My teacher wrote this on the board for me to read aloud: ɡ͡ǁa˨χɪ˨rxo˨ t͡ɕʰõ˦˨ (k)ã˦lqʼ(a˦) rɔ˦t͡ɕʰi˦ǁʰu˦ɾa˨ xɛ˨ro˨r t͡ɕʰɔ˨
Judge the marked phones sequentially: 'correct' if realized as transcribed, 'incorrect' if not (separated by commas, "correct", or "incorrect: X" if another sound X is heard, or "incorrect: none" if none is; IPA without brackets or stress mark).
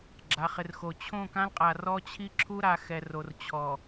correct, incorrect: a˨